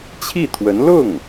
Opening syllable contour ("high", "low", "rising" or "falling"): falling